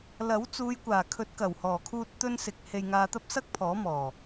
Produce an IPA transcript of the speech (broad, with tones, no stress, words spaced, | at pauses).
lɐ˨˥wt͡suː˨˧jkʷaː˨˩ kʰɵ˨˥t̚kɐ˨˩whɔː˨˩kʰuː˧t̚ t̪ɵ˥nsɪ˧k̚ he˧jŋaː˧t̪ɐ˥p̚sɐ˥k̚ pʰɔː˨˥mɔː˨˩